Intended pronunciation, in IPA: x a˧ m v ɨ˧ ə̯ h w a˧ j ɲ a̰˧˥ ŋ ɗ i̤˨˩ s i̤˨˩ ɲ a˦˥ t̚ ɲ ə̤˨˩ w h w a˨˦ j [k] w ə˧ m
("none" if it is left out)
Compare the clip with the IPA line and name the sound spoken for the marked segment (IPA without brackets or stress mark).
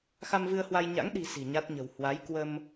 k